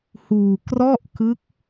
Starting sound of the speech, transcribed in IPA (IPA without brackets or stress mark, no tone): h